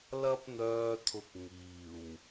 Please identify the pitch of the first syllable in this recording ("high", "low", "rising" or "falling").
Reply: high